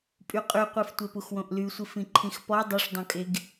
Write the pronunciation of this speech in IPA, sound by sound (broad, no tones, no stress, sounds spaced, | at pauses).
pʼ y qʼ y qʷ e f tʷ e p u x w õ ʔ l y sʷ i f ĩ ǃʰ ĩ x p ɔ dˤ o ʂ dˤ õ kʼ e ɡ